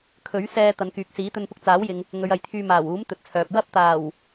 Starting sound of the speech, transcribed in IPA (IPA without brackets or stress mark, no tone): kʰ